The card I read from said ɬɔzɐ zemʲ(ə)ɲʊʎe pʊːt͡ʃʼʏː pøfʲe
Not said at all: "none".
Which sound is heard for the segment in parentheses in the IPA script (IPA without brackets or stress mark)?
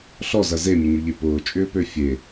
ə